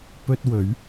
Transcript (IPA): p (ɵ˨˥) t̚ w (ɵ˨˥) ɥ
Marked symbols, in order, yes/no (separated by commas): no, yes